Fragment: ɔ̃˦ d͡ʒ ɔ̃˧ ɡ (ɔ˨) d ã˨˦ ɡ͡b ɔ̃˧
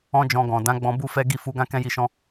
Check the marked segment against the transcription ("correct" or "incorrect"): incorrect